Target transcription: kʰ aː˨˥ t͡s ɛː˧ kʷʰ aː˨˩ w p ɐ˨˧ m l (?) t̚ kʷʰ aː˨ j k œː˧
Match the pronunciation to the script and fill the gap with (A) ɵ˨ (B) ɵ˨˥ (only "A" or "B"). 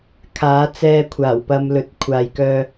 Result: A